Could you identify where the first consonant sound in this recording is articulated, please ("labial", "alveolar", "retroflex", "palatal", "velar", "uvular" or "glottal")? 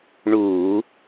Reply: retroflex